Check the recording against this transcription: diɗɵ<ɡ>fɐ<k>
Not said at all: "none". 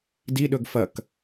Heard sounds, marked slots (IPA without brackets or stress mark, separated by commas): ɡ, k